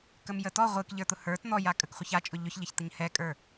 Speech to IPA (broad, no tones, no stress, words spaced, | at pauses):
kəmjətɔ ʁʷɨk ʎə˞t̪ʊhə˞t n̪ɔjakʼək χʷəçat͡ʃʼʊ ʎʊçʎəç t̪əɲhɛkʼə˞